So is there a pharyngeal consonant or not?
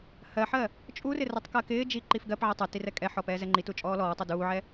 yes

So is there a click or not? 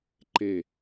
yes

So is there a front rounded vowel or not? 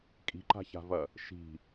no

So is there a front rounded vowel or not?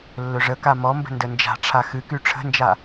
yes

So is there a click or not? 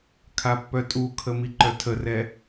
yes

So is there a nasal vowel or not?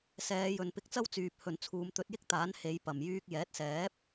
no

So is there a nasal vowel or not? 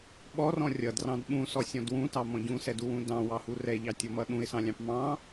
yes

